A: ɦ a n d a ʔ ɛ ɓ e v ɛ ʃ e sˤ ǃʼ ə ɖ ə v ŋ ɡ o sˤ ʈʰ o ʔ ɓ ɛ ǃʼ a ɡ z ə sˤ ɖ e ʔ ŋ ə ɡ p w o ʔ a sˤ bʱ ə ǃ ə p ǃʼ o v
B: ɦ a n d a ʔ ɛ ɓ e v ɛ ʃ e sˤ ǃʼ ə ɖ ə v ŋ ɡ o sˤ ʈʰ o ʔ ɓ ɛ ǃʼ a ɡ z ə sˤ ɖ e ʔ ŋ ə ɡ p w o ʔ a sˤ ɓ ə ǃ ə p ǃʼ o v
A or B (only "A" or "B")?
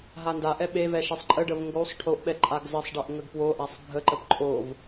A